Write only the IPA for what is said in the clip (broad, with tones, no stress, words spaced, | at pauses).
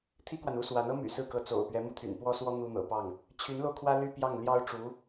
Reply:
t̪ʰi˥kwa˨nu˥swa˧˥n ɤ˥my̰˨˩ sɹ̩˥˩kɤ˧˥t͡so̰˨˩ʊ̯ pɥɛ˧˥mu˥t̪ʰy̰˨˩n pwɔ˥swɔ˥ n̪u˥n̪ɤ̰˨˩pɑ˥˩ŋ | t͡ɕʰy˧˥nlo˧ʊ̯kʰwä˥ ly˥˧pjɑ˥˩ŋ ljɑ˥ʊ̯ʈ͡ʂu˧˥